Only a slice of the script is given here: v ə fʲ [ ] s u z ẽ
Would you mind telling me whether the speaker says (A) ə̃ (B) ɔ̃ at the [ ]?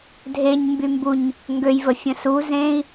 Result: A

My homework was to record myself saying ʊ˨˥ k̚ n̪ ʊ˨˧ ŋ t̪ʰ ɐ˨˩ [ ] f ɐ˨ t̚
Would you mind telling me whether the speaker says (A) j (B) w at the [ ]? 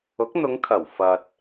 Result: B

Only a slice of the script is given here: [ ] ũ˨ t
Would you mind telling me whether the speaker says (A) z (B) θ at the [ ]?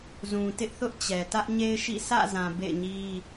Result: A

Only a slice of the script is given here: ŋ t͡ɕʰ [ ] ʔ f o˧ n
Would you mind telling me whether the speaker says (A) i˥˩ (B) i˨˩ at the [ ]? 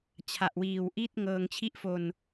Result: A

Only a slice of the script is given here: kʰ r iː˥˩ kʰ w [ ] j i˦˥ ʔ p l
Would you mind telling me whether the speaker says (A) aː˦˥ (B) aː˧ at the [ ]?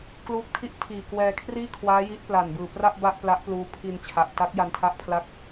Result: A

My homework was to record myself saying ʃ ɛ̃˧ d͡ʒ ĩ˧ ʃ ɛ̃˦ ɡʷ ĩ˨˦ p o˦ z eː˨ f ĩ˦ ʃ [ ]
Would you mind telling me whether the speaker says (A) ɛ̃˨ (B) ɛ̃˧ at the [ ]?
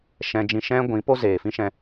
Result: B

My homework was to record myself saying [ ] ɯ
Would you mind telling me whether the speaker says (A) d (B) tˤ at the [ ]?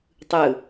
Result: B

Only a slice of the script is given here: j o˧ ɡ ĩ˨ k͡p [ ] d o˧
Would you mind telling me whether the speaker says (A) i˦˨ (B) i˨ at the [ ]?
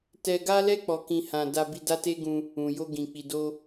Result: B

